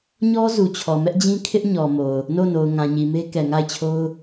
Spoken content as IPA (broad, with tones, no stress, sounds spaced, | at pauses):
ɲ ɔ˦ z u˨ t͡ɕʰ ɔ˨ m ɛ˦ ʔ d͡ʑ ĩ˦ kʰ ɪ˦ ʔ ɲ ɔ˨ m o˨ ʊ̯ | n o˦˨ n o˨ ʊ̯ ŋ ã˨ ɲ i˨ m e˦ k ɛ˨ ŋ a˦˨ ɪ̯ t͡ɕʰ o˦ ʊ̯